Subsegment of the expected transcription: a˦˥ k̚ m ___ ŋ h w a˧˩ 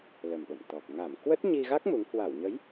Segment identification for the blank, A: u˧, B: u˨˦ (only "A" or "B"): B